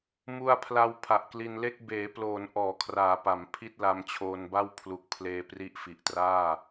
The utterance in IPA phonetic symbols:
m u˧ a̯ pʰ l a˧ w pʰ a˨˩ ʔ k l i˧ n l e˥˩ k̚ b eː˩˦ p l oː˩˦ n ʔ ɔː˩˦ kʰ r aː˩˦ p a˩˦ m pʰ i˥˩ t̚ l a˧ m t͡ɕʰ oː˧ n b a˥˩ w pʰ l u˨˩ k̚ pʰ l eː˧ p r i˦˥ ʔ f i˨˩ ʔ t r aː˥˩

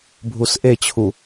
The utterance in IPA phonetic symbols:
bʱ u s ʔ e t͡ɕʰ u

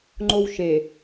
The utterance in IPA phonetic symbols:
ŋ͡ǃ o w ʃ e

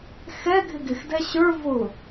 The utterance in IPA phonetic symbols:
x ɛ ɡʱ ɪ ɡ ɪ x d ɛ ɕ ə˞ v ʊ

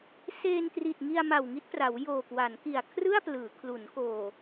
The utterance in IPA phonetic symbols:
s eː˧ n t r i˨˩ t̚ ŋ i˧ a̯ m a˨˩ w ŋ i˦˥ t̚ p r a˩˦ w j oː˨˩ k w a˩˦ n k i˨˩ a̯ kʰ r ɯ˥˩ a̯ p l ɯː˩˦ kʰ l u˩˦ n k oː˨˩

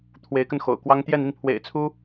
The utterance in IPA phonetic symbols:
t̪ʰ w e˧˥ ɪ̯ k ə˧ n x o̰˨˩ ʊ̯ k w ɑ˥ ŋ t̪ j ɛ˥˧ n i˥˩ n pʰ w ḛ˨˩ ɪ̯ t͡sʰ u˥

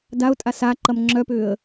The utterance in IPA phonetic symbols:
d a ʊ̯ tʼ a s a ǃ ɐ m ŋ͡ǁ œ p ʏː ə̯

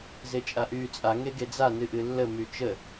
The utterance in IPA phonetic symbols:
z e t͡ʃʼ a ʔ yː t͡sʼ a ŋ e ɡ e d͡z a n ɨ ʔ ɨ lː ə m y t͡ʃ ə

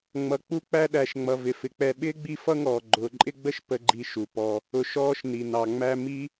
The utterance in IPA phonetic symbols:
ŋ͡m ʌ˨ k͡p u˦ k͡p æ˦ ɗ æ˨ ʃ ŋ͡m ʌ˨ v ɪ˨ f ɪ˨ k͡p ɛ˧ ɓ ɪː˦ ɡ͡b i˦˨ f ʌ˦ ŋ ɔː˨ ɡ͡ǃ ʊː˨ ǃʼ ɪ˦ ɡ͡b ə˦ ʃ p ə˧ ɡ͡ǃ i˧ ʃ u˨ p ɔ˧ | ʊ˨ ʃ ɔː˧ ʃ n i˨ n ɑ˨ ŋ͡m æ˦ m i˦

